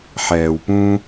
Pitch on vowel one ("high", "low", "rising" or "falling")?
low